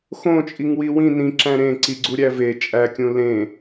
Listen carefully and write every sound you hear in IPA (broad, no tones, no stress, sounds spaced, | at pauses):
x õ t͡ʃʼ i ŋ w i w ĩ n ĩ ǁ æ̃ ɾ ẽ ǀ i ɡ͡ǀ u ɾʲ æ v e t͡ʃʼ æ kʲ ũ l ẽ